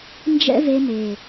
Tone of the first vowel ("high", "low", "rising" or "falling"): high